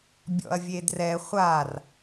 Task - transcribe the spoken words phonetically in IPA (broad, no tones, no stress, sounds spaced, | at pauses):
bʲ ɔ̰ ɐ̯ vʲ e d r ɛ χʷ a r